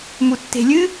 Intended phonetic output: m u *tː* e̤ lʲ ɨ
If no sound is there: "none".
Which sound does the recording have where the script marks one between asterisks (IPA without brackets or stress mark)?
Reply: tː